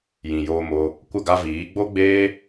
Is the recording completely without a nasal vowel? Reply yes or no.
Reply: no